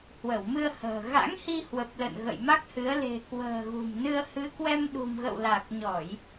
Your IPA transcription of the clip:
h w ə˧˩ w m ɨ˧ ə̯ h ə̤ː˨˩ ɣ a̰˧˥ ŋ h i˧ h w ə˨˩ p̚ l ə̰˧˨ n ɣ ə̰˧˨ j m a˦˥ k̚ h ɨ˨˦ ə̯ l e̤˨˩ k w ə̤ː˨˩ ɣ ṳ˨˩ m n ɨ˧ ə̯ h ɨ˨˦ k w ɛ˧ m ɗ ṳ˨˩ m ɣ ə̰˧˨ w l a˨˩ k̚ ɲ ɔ˧˩˨ j

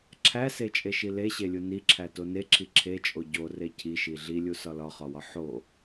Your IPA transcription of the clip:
ǁʰ æ s e t͡ʃʼ e ʃ i l e ɕ e lʲ u n i ǁʰ æ t o n e ǁʰ i ǁʰ e t͡ʃʼ o ɟ o r e cʰ i ʃ i ɮ i lʲ u s ɒ l ɒ χ ɒ w ɒ ħ o

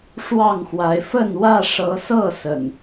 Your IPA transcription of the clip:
ʂ w ɑ˥˨ ŋ x w a˨˦ ɪ̯ f ə˥˨ n w ä˥˨ ʂ ɤ˨˦ s ɤ˥˨ s ə̰˨˩ n

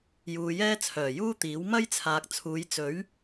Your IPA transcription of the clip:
j uː˨ j ɛː˥ t͡sʰ œː˨˩ j uː˥ t̪ iː˨˥ w m ɐ˥ j t͡sʰ aː˨ k̚ t͡sʰ uː˨˧ j t͡s ɵ˨˥ ɥ

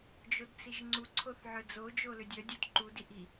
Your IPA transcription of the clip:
d͡ʒ o d t͡s i ʒ ŋ͡ǀ u ǀʰ o θ ʕ œ d͡z o d͡ʒ o l ʏ dʲ œ dʲ o d ǃ u d i ʔ i

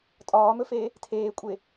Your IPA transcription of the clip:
tʼ ɒː m ɵ f eː | tʰ eː kʷʼ e

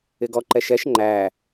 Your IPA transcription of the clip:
ɪ ɡ ɔ ǃ ɛ ʃ ɛ ʃ ŋ͡ǃ æː

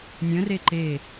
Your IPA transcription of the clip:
nʲ ə̃ r e ǃ e

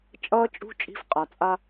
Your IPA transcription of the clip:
t͡ʃʼ ʌː˧ t͡ʃʼ ṳ˧ t͡ʃʼ i̤˧ f qʼ a˨ t͡sʼ a˦

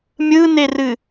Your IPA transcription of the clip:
mʲ ɯ n e r ɨ

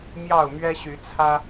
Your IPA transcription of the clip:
m j ɑ˥˨ ʊ̯ m ɥ ɛ˦ ɕ y˨˦ t͡sʰ ä˦

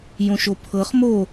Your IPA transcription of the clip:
j õ ʃ o pʰ ɤ χ m o

